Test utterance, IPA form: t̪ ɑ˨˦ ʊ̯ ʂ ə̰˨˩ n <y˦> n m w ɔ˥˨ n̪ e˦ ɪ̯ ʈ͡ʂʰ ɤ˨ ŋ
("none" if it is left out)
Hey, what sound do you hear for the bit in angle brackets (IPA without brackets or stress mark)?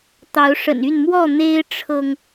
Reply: y˥˨